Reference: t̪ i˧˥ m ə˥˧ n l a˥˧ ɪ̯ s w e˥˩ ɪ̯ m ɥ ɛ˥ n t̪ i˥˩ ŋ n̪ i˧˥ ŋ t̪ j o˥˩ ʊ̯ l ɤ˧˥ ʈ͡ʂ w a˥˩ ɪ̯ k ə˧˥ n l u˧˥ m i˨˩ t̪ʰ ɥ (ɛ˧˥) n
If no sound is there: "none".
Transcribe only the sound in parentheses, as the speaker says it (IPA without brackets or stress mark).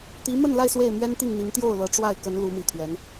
ɛ˧˥